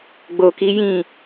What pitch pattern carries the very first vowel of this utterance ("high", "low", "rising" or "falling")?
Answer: low